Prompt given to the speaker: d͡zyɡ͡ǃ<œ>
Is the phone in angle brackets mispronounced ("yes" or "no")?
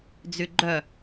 no